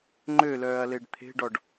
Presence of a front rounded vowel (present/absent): present